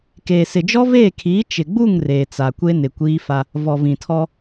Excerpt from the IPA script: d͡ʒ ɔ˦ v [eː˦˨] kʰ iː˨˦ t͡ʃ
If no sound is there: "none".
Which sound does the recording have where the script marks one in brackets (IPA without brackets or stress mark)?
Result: eː˦˨